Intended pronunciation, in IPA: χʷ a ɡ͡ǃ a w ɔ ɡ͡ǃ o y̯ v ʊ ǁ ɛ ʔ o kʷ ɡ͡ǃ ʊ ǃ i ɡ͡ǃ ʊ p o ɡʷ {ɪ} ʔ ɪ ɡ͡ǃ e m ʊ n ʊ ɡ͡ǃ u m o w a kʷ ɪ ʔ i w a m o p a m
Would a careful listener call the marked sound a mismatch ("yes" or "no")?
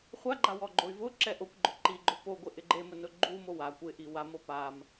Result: no